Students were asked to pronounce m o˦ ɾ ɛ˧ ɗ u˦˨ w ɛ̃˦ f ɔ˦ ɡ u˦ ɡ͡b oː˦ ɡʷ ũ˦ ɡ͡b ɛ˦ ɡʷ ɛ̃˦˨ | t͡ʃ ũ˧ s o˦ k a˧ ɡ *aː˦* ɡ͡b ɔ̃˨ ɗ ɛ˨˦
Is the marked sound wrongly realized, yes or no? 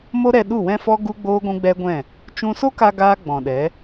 no